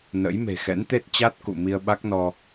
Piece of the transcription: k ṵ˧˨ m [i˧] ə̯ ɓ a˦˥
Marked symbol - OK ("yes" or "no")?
yes